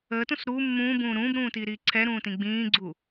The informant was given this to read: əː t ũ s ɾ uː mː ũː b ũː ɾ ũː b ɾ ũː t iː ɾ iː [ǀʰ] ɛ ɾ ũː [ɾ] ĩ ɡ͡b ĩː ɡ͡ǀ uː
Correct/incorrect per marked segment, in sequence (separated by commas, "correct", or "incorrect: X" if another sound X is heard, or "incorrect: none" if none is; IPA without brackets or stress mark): correct, incorrect: t